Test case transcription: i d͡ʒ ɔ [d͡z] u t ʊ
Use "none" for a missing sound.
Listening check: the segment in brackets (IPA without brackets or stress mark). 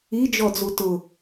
d͡z